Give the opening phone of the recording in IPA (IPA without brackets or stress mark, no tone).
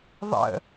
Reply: ðˤ